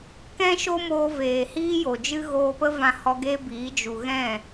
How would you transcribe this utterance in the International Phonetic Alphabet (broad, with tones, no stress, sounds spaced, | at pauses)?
k ɛ̃˦ ʃ o˦ m oː˧ v eː˨ h iː˦ j o˨ d͡ʒ ɨ˦ ɣ oː˧ p ə˦ v ã˧ h ɔ˧ ɡ eː˦ b iː˨˦ d͡ʒ u˨ ɣ ɛ̃˦˨